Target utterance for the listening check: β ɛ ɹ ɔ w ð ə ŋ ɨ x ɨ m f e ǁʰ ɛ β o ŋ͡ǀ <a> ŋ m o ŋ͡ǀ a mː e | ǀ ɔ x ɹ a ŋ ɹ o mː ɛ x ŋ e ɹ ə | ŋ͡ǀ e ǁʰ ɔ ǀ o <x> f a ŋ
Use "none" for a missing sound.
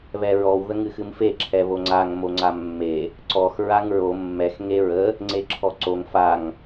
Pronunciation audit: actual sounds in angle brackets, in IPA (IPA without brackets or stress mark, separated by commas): a, ŋ